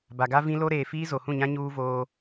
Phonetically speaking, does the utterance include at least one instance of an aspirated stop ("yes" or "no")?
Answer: no